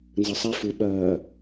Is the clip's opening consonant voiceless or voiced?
voiced